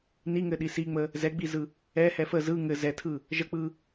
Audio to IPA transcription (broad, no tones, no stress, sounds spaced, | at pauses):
n i ŋ ɘ ɗ i s i ŋ͡m ə | z ɛ ɡ͡b i z ɯ | ɛ h ɛ f ə z ɯ ŋ ɘ z ɛ tʰ ɯ | ʒ ə k͡p ɯ